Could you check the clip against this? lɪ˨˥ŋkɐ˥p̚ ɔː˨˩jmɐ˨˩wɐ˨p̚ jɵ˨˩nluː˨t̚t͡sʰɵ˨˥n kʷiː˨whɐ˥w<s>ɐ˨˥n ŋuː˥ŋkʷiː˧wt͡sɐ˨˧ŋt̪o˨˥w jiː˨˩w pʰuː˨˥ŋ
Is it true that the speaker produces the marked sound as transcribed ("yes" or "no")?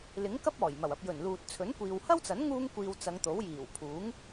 no